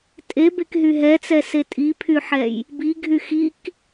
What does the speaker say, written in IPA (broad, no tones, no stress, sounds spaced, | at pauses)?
tʼ e b e k ɦ y ɦ ɛ t͡s ɛ s e tʼ i pʰ y ħ ɛ j | b i ɡʱ y x i k